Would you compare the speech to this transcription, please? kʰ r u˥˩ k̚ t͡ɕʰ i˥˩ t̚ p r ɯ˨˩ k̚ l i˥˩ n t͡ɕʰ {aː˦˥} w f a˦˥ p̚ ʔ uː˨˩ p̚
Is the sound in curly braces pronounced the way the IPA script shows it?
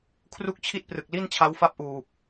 no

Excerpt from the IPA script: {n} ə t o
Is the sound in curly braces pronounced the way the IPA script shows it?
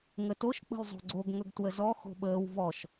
no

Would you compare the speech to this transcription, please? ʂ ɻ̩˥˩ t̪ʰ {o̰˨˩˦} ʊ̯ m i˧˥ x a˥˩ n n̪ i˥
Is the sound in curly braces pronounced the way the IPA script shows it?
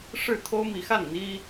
no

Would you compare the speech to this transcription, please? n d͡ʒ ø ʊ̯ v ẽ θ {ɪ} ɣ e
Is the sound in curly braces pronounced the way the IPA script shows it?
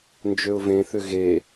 no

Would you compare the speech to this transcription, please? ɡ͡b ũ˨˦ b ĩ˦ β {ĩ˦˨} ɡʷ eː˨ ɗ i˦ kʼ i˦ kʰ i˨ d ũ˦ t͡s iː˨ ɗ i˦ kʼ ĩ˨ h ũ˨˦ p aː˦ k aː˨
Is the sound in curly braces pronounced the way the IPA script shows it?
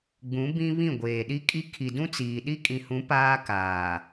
yes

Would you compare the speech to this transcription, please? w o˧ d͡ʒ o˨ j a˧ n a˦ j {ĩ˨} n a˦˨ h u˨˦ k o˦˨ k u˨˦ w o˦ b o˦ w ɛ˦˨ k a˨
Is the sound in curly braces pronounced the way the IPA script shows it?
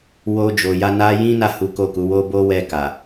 no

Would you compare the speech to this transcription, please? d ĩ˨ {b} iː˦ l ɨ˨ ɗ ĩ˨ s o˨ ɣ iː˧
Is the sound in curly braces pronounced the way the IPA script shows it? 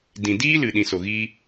no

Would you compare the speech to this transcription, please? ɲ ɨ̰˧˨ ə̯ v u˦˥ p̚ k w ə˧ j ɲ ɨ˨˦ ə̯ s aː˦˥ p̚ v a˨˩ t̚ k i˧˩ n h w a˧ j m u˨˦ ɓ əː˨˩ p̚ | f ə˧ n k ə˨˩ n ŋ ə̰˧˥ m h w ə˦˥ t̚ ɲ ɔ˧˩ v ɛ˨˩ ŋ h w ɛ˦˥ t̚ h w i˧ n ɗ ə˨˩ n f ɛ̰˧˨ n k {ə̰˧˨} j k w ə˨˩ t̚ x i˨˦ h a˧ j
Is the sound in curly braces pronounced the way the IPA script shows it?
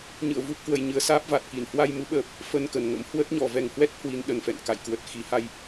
no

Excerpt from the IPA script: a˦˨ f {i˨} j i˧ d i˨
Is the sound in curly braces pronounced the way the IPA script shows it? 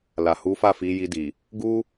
no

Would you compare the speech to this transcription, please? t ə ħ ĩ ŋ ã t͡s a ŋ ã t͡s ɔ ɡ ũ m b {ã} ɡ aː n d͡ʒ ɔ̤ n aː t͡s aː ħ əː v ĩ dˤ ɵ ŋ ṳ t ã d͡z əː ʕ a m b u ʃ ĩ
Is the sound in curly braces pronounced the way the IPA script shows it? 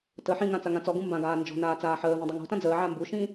yes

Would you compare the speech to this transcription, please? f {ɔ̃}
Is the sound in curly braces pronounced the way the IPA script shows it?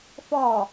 no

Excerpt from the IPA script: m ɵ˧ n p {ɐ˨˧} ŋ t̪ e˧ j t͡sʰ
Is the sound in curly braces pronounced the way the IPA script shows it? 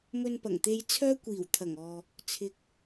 no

